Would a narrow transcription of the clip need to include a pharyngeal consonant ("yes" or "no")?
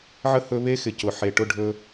yes